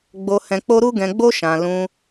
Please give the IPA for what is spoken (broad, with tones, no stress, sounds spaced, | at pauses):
ɡ͡b o˧ h ɛ̃˧ k͡p o˦ ɾ u˦ ɡ ɛ̃˧ ɡ͡b o˦ ʃ ã˧ l ũ˧